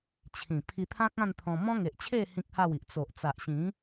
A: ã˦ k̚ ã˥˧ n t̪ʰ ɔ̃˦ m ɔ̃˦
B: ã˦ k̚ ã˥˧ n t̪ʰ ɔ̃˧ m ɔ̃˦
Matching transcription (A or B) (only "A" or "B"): B